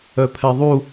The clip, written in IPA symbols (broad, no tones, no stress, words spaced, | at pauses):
œpʰɛðˤu